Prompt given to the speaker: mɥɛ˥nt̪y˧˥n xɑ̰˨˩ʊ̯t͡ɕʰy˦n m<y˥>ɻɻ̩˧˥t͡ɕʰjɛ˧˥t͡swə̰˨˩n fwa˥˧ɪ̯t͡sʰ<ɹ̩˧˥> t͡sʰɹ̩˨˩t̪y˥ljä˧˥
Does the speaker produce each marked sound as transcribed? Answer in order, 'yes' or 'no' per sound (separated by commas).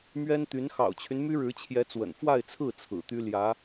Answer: yes, no